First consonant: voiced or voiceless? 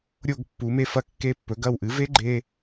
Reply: voiced